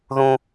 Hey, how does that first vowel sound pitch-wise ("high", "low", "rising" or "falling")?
high